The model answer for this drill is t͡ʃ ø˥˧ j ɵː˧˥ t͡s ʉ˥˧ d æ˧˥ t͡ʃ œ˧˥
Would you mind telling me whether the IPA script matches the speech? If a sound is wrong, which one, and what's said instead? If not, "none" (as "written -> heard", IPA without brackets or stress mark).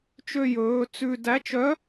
none